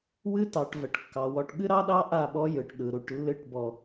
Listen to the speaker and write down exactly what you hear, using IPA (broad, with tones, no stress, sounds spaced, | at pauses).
w ɨ˦ t ɑ˨ ʈ v ə˨ ʈ kː ɑ˨ w ɔ˨ ʈ ɠ ɨ˦ ɾ ɑ˦ ɗ ɑ˦ ʔ a˦˨ ɓ ɔ˦ j ɯ˨ ʈ ɗ ɯ˨ ɾ u˨ ʈ lː ɨ˦˨ ʈ b ɔ˨